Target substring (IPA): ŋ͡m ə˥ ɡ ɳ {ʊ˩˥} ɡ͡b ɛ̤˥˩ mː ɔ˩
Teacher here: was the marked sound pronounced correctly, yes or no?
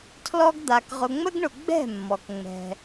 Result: no